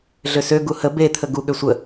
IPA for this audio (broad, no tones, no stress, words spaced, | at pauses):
ɮøsø ɡuhə bet̪ʰə ɡu ɠøsʷə